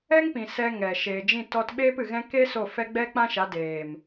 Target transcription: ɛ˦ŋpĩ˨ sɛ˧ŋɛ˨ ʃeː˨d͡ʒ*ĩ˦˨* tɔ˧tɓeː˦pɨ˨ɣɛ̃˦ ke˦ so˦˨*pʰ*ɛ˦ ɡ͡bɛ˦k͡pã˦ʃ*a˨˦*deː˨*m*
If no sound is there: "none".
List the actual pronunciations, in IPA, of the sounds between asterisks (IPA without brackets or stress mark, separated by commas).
ĩ˦˨, f, a˨˦, m